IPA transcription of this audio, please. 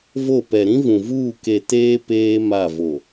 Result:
v o˦˨ p ɛ˨ ɾ ĩ˦ v ũ˨ v uː˦˨ k e˨ t eː˦ p eː˦ m a˦˨ v o˨

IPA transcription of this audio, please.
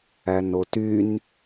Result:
æ n o t y n

